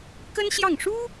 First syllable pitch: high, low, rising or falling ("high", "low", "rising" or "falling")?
high